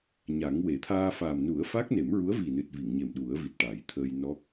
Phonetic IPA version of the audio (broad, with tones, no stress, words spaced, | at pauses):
ɲa˨˩˦ŋwe˨˩˦ t̪ʰaː˧faː˨˩m nu˨˩˦ə̯ fa˦˥k̚ne˨˩˦mɹu˧˥ə̯vi˨˩ nɨ˨˩t̚vi˨˩˨ŋɲe˨˩m ɗu˨˩˦ə̯ vi˨˩t̚ʈa˨˩˦jt̪ʰəː˧j nɔ˦˥k̚